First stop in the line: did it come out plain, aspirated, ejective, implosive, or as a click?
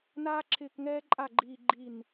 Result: click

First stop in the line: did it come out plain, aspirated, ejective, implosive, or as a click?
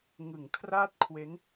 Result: aspirated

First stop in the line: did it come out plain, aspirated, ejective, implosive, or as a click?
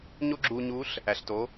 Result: click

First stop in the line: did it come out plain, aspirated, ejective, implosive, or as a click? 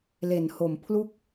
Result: aspirated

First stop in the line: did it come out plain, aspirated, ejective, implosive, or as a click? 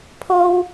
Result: aspirated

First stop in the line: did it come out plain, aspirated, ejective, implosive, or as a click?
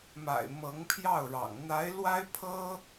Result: aspirated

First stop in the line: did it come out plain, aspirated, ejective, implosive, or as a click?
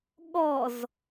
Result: implosive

